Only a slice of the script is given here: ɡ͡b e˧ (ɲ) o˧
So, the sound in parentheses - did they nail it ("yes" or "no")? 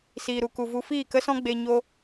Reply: yes